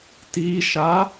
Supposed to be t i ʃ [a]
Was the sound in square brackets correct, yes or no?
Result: yes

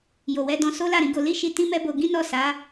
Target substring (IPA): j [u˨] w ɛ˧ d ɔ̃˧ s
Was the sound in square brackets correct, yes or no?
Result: no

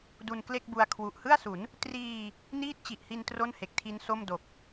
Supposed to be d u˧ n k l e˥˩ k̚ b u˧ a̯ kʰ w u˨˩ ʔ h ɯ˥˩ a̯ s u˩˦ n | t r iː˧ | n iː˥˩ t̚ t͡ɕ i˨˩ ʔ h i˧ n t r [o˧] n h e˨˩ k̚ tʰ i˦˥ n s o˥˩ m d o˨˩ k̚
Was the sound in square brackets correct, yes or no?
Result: no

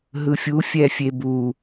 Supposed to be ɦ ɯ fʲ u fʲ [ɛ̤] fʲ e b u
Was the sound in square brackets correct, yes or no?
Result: no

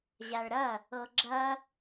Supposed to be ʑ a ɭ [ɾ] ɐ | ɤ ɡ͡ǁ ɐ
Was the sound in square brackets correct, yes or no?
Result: yes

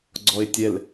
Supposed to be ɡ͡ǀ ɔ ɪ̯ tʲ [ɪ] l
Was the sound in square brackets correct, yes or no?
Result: no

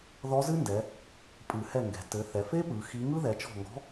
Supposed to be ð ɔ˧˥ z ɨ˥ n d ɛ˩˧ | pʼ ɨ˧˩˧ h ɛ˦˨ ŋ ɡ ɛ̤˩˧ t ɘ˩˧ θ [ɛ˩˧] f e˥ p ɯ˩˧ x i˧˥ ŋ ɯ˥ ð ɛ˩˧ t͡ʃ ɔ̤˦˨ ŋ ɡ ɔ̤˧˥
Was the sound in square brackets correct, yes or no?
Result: yes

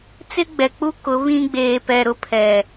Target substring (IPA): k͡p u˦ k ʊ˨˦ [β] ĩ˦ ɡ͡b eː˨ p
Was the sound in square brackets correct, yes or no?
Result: yes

